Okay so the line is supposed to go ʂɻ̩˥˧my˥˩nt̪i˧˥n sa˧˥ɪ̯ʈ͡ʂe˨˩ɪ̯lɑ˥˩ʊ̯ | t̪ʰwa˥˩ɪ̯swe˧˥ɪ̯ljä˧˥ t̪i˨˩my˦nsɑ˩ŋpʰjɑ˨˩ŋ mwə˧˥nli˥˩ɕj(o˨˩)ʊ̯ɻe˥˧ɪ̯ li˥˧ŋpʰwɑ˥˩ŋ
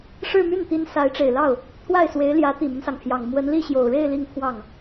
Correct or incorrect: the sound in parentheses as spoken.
correct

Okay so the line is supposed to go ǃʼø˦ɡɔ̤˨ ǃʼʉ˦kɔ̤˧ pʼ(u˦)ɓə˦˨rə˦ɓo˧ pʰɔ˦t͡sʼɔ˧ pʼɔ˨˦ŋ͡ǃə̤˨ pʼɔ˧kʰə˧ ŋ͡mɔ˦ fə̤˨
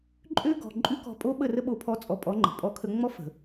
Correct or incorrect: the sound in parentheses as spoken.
incorrect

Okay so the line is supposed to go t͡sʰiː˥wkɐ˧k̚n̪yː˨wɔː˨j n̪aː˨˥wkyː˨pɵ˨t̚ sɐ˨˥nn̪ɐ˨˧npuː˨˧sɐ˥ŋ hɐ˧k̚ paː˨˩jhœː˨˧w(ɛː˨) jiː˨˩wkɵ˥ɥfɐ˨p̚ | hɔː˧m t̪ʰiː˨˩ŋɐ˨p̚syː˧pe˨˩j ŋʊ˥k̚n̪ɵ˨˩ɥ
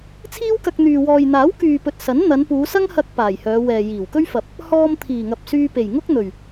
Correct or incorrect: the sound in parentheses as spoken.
correct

